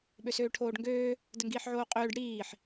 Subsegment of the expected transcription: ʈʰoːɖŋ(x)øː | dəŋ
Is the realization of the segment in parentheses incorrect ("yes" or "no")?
yes